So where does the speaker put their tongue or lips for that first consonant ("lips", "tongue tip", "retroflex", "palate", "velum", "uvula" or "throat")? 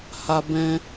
throat